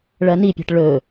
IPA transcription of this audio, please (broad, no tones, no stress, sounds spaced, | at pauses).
ɭ ɐ n i pʲ a̤ ʈ ɭ ɵ